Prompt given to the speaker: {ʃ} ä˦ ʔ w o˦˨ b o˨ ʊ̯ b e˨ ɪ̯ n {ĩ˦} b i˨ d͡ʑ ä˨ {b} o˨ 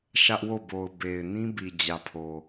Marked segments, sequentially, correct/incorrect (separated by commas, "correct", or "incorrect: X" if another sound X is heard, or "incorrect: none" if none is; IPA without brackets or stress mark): correct, correct, incorrect: pʰ